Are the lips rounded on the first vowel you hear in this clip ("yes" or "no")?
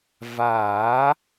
no